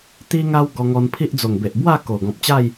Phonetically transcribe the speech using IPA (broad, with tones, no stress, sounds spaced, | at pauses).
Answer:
t̪ i˧ ŋ a˧ w ɡ ɔ˧ ŋ ɔ˧ n pʰ i˦ ʔ d͡z o˨˩ ŋ b e˨ ʔ b w a˥˧ k o˨˩ ɡ ɔ̃˨ p̚ t͡ɕ a˥˧ j